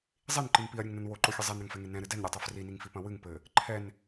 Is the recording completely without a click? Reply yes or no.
no